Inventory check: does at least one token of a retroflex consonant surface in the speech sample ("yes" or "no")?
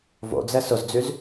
no